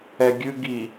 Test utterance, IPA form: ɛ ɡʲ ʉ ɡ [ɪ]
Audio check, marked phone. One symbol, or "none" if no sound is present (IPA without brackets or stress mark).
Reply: i